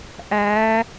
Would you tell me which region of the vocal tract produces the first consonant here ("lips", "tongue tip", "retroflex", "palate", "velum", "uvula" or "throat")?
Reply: throat